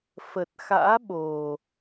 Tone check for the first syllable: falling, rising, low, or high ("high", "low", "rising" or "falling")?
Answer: low